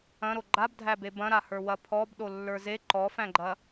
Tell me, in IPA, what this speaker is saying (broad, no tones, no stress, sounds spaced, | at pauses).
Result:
ɐ̃ ɾ o ɡ͡ǃ a b dʱ æ b e b ɐ̃ ɾ a h ə˞ w ɐ pʰ ɔ b ɗ o lː ə˞ z e ǃ ɔ f æ̃ ɡ͡ǃ ɐ